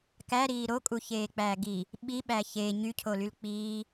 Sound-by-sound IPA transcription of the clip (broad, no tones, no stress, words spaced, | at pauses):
kæɾiː ɾokʼuçeːk͡pæː ɡi | ɓiɓæ çe ɲycʰolyl k͡piː